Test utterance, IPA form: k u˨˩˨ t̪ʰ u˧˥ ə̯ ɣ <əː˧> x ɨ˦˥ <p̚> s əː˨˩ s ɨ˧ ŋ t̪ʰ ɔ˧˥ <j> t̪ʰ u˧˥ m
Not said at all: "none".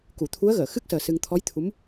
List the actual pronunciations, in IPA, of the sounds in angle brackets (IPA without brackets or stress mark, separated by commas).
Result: əː˨˩˨, k̚, j